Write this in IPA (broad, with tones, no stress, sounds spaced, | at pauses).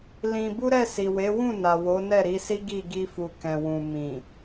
l ĩ˧ b u˦ ɾ ɛ˦˨ s i˨ w e˨˦ w ũ˦˨ n a˨ w o˨˦ n ɛ˦˨ ɾ i˨˦ s i˦ ɡ i˦˨ ɡ i˧ f u˨ k ɛ̃˨ w ũ˨ m ĩ˨